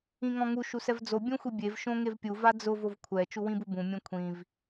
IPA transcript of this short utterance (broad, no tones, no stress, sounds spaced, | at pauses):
ĩ ŋ ɔ̃ ŋ u ʃ u s ɛ v d͡z o bʲ õ xʷ i bʲ e v ʃ õ ŋ e v pʲ u v a d͡z ʊ v o v kʷʰ ɛ t͡ʃ u w ĩ b u b ũ mʲ õ kʷʰ ĩ v